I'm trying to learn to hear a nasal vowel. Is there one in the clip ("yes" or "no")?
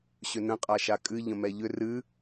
yes